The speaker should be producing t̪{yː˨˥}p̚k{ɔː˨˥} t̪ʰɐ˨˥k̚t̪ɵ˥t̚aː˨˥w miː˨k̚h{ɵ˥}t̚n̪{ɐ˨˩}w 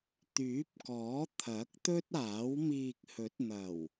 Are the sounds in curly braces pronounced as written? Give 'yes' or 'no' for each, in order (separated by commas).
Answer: yes, yes, no, yes